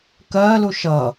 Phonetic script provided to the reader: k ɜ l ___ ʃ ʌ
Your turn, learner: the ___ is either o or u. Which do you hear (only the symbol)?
u